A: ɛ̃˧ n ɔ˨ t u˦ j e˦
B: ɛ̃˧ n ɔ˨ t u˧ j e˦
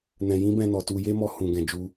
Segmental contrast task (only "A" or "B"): B